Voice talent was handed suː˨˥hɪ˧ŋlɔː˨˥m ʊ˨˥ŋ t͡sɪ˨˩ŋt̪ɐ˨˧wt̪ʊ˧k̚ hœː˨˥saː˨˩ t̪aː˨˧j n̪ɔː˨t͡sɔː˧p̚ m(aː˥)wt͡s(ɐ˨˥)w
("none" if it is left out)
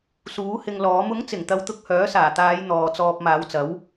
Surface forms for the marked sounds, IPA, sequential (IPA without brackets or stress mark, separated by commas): aː˨˧, ɐ˨˥